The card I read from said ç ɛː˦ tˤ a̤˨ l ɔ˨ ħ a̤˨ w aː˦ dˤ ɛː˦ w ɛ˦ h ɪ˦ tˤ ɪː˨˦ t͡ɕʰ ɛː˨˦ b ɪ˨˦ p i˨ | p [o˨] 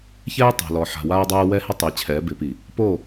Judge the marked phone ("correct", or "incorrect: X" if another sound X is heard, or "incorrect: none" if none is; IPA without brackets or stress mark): incorrect: o˦˨